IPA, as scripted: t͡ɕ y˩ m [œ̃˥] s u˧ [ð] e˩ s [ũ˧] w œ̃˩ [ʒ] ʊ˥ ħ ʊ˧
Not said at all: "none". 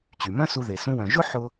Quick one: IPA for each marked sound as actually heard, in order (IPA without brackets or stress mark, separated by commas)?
œ̃˥, ð, ũ˧, ʒ